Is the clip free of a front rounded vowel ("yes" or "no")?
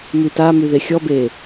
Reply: no